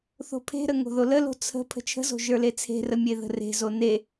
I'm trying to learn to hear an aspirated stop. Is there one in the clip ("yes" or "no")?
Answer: yes